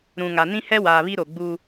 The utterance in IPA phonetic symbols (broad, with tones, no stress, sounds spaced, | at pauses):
ɾ ũ˨ ŋ a˨ n ĩ˦ h ɛ˦ w aː˨ β i˦ ɾ o˨ ɡ͡b u˦